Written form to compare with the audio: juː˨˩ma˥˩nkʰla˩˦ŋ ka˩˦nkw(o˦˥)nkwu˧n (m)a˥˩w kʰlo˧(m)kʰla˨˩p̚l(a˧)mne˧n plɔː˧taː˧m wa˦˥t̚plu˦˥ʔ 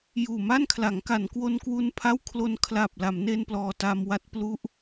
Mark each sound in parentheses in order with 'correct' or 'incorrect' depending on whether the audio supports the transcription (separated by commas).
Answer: incorrect, incorrect, incorrect, incorrect